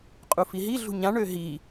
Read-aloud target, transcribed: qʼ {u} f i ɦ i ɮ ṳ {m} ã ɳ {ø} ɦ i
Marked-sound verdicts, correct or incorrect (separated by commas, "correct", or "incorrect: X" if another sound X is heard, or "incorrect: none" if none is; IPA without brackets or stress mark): correct, incorrect: ɲ, correct